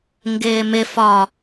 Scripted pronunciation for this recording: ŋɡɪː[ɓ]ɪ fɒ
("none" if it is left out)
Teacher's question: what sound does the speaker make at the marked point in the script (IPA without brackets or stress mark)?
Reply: m